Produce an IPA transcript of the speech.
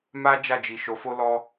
m a˦ d͡ʒ a˦˨ d͡ʒ i˨ ʃ o˨˦ f o˦ l ɔ˦

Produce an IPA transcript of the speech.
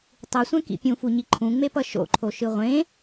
tˤ ɯ sʷ ɛ̃ k ḭ pʲ ũ f u ɲ i ǃʰ ũ ŋ͡m e p ʌ ʃ o̰ ǃʰ o ʃ ɯ ʁʷ ẽ

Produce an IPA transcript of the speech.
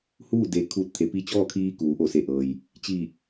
h uː˥˨ d e˩ kʰ uː˧˩ t̚ t̪ʰ e˩ p i˧ t͡ɕ ɔː˥˨ kʰ iː˧ k uː˩˧ ʔ o˧˩ s e˧˩ ʔ ɤː˩ j | t͡ɕ iː˧˩ k̚

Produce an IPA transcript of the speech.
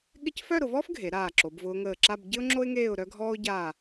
ɠ ɪ˥˧ c f œ˥˧ ɾ ʊ˩˧ v ɔː˥ f ɡʱ e˩˧ ɾ aː˧˩ ǁ o˩˧ b v ʊː˧ ŋ əː˧˩ ǁ a˥˧ b ɟ ɪ˥ ʊ̯ ŋ͡ǁ o˥ ɪ̯ ŋ eː˥˧ ʊ̯ ɾ œ˥ ɡʱ ɔː˥ ʊ̯ ɟ aː˥˧

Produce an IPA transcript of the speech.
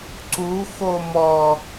ǀ u x o m ɔ

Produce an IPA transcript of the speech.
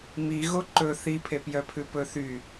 m i ɣ o ǃ ɵ θ i pʰ e p j œ pʰ ʉ p ɵ θ y

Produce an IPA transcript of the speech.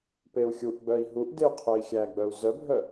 p e u̯ xʲ u ʔ ɡ͡b œ i̯ ɦ u ʔ d e u̯ qʰ œ i̯ xʲ æ ɡ͡b œ u̯ z œ bʱ œ

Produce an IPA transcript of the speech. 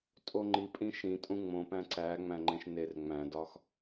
tʼ o ŋ͡ǃ i pʼ ĩ ʃ ĩ tʼ ũ ŋ͡m õ p æ̃ ǀ æ ŋ͡m æ̃ ŋ͡ǃ ẽ ʃ n e r ŋ͡m æ̃ d ɒ x

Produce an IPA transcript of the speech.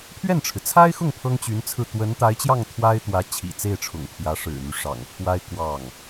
pʰ ɥ ɛ˥˩ n ʈ͡ʂʰ ɻ̩˩ t͡sʰ a˥ ɪ̯ x ʊ˥˩ ŋ pʰ ɤ˥ ŋ t͡ɕ y˧˥ n t͡sʰ ɹ̩˥˩ t̪ w ə˧˥ n t̪ a˧˥ ɪ̯ t͡ɕ j ɑ˥˩ ŋ t̪ʰ w a˥ ɪ̯ t̪ w ä˧˥ t͡ɕʰ ḭ˨˩ t͡s e˥˩ ɪ̯ ʈ͡ʂʰ ʊ̰˨˩ ŋ pʰ j ä˧˥ ʂ ɻ̩˨˩ n̪ y˦ ʂ ɑ̰˨˩ ŋ pʰ w a˥ ɪ̯ k w ɑ˥˩ ŋ

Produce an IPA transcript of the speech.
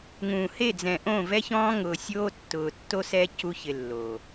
ŋ ũː˨ h e˦˨ d͡z ɛ̃˨ ʔ õ˦˨ v ɛ˦ ç ɔ̃ː˦ ŋ ʊː˨ sʲ oː˦ tː ʊː˨ tː o˦ s ɛ˦ c u˦ ç ɪ˨ lː oː˨

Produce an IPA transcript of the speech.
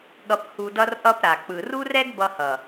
ɠ ʌ˧ p h u˧ d ʌ˦ r ʔ ʌ˦ p ɾ a˨ k͡p ɯ˨ r u˦ r ɛ˦ ɡ b ʌ˧ h ʌ˨

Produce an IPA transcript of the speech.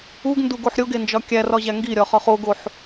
u ɡ n d u ɡ o ħ ɾʲ o ɡ e n d͡ʒ ɒ kʲ æ r ɒ ʑ æ ŋ ɡ i ɾʲ ɒ χ ɒ χ o ɡ o ħ

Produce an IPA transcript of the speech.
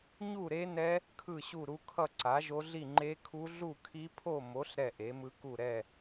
ɲ u˥˧ ɾ e˦˥ n ɛ˦˥ | kʰ ɯ˥˧ ɕ u˥˧ ɾ u˦˥ kʰ ʌ˥˧ ǀ a˨˥ ʒ o˦˥ ɮ i˥˧ ŋ͡ǃ e˦˥ kʰ u˦˥ ɮ u˥˧ kʰ i˦˥ pʰ o˥˧ m o˨˥ ɬ ɾ ɛ˥˧ ʔ e˨˥ m ɯ˦˥ k u˥˧ ɾ ɛ˥˧

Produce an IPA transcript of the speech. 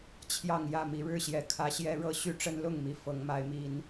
t͡ɕʰ j ɑ˥˨ ŋ j ä˥˨ m i˨˦ ɻ ɻ̩˦ ɕ j ɛ˨˩ kʰ ä˨˦ ɕ j ɛ˦ ɻ ɤ˥˨ ɕ y˦ ʈ͡ʂ ə˦ n l ʊ˥˨ ŋ m i˨˩ f ɤ˨˦ ŋ m a˨˦ ɪ̯ m i˨˦ n

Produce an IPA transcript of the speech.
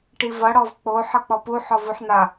ʈ i v ʌ ɽ ɔ v k͡p o ħ ʌ k͡p ɔ p u ħ ɔ v u ħ n a

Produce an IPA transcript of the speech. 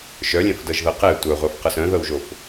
ʃ œ lʲ ɛ̃ f d ɤ ʒ ð ɤ q ɛ tʷ œ ʁʷ a f q ɤ s œ̃ ð ɤ w ʒ o f

